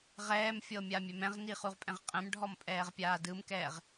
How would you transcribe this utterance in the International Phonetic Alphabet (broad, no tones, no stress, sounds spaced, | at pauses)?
ʁ ɛː m fʲ ɤ mʲ a mʲ ɛ m ɛ̃ ʁ n i χ u ʁ pʼ ɛ̃ ʁ qʼ ɛ̃ m ɖʱ ɔ m pʼ ɛː ʁ pʲ aː d ɯ m k ɛː ʁ